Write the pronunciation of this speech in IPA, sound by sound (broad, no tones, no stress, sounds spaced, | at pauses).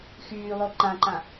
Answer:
x yː lˠ o ǃ ã ǃ ã